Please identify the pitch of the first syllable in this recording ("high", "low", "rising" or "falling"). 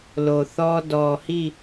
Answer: low